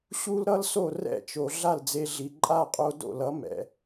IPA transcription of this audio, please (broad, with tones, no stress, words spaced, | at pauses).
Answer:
ɕu˥lɾʌ˥lso˥˩ rɛ̰˥˩t͡ʃo˩ ɮa˥˩ld͡ze˧ɮi˩ ǃʼa˥˩qʼo˧ do̰˥˩lʌ˩˥ mɛ̰˩